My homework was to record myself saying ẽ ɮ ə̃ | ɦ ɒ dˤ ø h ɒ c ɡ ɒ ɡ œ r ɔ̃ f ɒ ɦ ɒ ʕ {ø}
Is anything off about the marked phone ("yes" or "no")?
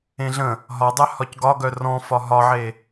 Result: yes